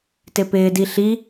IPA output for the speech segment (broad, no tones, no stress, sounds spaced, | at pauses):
t ɪ p ɪː d i ɬ i